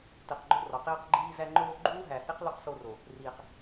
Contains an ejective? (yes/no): no